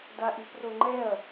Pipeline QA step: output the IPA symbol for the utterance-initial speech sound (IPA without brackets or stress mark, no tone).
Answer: d